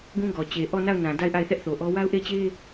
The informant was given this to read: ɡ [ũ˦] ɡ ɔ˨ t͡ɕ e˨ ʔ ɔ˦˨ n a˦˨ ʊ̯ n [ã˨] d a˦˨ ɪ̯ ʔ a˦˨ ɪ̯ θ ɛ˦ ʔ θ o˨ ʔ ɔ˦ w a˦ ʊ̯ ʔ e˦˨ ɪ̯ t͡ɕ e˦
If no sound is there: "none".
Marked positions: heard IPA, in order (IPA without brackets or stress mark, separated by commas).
ũ˦, ã˨